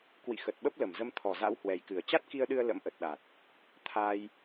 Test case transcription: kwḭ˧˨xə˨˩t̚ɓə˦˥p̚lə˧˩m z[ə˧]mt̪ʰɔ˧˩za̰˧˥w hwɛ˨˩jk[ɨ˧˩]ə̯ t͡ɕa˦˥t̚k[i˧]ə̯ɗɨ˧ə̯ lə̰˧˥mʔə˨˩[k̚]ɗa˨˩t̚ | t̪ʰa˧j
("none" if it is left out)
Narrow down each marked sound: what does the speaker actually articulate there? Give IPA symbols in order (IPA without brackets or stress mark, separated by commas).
ə˧, ɨ˧˩, i˧, t̚